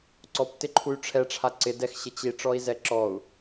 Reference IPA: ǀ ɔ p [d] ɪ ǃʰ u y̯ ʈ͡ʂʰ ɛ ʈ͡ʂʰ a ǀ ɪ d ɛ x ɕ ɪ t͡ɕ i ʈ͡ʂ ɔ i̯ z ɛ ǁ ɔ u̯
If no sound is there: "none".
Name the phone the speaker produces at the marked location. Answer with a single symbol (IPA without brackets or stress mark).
t